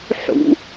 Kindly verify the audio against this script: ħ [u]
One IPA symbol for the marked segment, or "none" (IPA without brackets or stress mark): ṵ